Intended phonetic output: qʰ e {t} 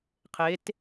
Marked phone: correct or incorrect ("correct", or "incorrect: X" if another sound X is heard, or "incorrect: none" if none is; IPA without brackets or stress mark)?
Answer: correct